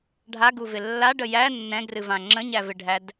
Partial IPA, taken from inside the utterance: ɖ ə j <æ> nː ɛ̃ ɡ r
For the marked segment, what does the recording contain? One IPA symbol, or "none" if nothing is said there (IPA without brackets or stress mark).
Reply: æ